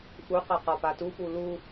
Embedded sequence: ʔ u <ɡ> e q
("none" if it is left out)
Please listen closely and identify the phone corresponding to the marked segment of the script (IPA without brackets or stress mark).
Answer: q